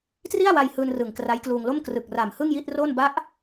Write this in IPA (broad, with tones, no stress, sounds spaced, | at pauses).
t r i˥˩ a̯ w a˧ j h ɯː˧ n r ɯ˨˩ ŋ k r a˦˥ j k l uː˧ ŋ l o˥˩ m k r ɯ˨˩ k̚ r a˨˩ m h ɯ˥˩ ŋ j i˥˩ t̚ r o˥˩ n b a˦˥ ʔ